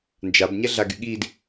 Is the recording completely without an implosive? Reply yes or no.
no